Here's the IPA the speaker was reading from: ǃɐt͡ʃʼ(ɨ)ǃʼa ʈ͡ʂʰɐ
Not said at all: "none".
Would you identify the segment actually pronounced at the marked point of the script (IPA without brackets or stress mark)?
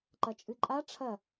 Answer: ɨ